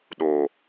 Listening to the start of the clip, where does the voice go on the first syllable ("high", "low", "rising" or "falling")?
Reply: low